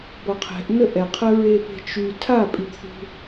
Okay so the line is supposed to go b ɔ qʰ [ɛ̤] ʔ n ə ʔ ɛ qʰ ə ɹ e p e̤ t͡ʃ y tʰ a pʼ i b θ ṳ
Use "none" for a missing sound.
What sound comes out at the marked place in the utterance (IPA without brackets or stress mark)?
ɛ̤